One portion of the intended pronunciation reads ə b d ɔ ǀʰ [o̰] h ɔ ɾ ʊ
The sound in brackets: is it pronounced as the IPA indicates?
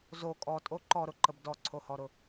no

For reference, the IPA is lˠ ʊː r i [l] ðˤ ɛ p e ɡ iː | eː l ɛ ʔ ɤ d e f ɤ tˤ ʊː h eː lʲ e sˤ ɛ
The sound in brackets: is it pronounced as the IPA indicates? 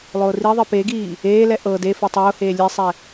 no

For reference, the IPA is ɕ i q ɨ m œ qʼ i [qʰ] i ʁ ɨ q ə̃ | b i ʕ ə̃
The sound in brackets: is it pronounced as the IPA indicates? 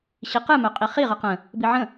no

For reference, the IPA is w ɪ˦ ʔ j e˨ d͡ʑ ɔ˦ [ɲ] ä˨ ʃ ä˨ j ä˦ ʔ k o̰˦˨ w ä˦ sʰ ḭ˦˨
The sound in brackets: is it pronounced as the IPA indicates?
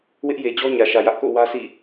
yes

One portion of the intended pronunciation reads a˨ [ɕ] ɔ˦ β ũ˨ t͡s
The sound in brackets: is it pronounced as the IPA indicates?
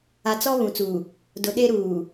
no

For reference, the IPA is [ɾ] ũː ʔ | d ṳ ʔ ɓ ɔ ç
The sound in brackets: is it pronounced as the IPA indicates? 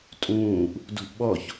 no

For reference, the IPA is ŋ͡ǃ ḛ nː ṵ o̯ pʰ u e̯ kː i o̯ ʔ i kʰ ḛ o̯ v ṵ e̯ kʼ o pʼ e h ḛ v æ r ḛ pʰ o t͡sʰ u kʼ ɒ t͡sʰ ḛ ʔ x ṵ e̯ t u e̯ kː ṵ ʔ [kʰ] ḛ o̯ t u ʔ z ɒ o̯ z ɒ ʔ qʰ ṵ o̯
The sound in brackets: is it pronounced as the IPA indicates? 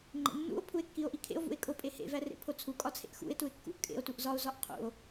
no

